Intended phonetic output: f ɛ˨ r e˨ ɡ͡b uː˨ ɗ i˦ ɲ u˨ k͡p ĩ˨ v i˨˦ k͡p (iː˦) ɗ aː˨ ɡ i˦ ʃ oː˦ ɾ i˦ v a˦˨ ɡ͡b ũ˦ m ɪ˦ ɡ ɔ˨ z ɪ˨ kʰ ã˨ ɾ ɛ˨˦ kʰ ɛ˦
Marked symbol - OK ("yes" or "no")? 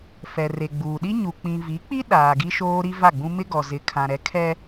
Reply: no